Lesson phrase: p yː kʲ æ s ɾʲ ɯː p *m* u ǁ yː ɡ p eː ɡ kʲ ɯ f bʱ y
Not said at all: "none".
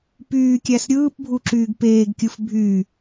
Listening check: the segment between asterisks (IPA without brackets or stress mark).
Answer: bʱ